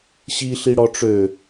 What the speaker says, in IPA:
ɕ i ɬ i ɽ ɔ ʈ͡ʂ ø

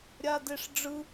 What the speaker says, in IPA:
ɾʲ a d e ʂ ɖ͡ʐ ɯ

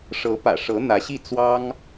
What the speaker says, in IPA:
ʂ ɤ˧˥ p ä̰˨˩ ʂ ɤ˧˥ n̪ ä˧˥ ɕ i˥˩ t͡s w ɑ˥ ŋ

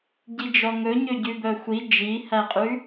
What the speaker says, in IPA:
ɟ i d͡ʒ ɔ ŋ ɵ ɲ ø ɟ ʉ b œ xʷ i d͡ʒ i h æ qʼ ʉ

